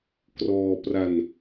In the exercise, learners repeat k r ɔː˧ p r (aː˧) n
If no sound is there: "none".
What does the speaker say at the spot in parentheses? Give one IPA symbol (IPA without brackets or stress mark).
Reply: a˧